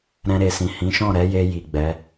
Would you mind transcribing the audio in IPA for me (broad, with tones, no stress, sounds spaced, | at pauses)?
ɾ ɛ̃˧ ɾ e˨ s ĩ˨ h ĩ˨˦ ʃ ɔ̃˦˨ ɾ ɛ˨˦ j e˧ j i˨ ɡ͡b ɛ˨˦